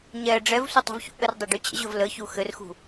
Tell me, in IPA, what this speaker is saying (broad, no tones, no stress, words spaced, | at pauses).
ɲɛ ɖ͡ʐɛvsʷə tˤṳvçṵʔɘr dˤɘɖyt͡ɕə̰ʑɵv ləçu xɘrxṳ